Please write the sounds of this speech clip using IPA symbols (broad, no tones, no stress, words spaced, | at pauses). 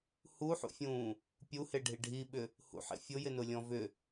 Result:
huħṵfʲũː | pʲuheɖʱi ɖʱiɓʏ | hṵħḛ fʲʊjɪnʊlʲɔ̃ vʏ